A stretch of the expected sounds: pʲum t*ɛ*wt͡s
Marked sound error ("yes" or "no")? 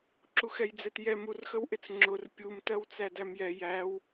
yes